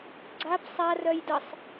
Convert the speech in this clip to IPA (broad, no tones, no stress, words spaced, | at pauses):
ɡ͡ǀap sˤa rœjdəsˤ